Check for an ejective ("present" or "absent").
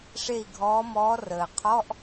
absent